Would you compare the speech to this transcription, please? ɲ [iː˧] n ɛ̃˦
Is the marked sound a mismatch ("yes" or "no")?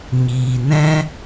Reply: no